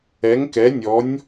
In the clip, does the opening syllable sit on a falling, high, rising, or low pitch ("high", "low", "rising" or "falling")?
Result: rising